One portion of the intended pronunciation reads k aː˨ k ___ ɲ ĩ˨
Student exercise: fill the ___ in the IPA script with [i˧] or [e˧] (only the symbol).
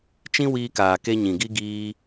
e˧